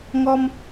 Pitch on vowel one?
high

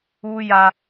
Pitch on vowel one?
high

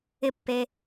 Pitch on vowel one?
high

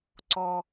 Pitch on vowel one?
low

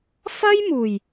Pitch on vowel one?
high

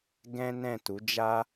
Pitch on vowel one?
high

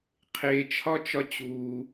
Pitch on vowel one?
low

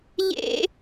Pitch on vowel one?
high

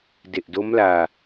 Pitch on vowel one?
low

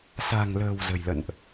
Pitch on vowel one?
low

